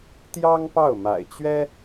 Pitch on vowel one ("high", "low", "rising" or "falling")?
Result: high